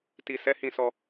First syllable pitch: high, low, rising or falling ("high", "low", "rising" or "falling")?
low